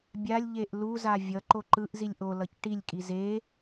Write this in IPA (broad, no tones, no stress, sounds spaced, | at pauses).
bʲ a lʲ ʎ e ʔ l u z a vʲ ʌ ǃ o ǃ ɯ ʔ z i lʲ ʔ o l ʌ c ʈ i lʲ kʼ i z e